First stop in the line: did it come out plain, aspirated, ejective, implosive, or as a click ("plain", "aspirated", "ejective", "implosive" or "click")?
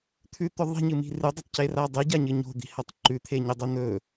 aspirated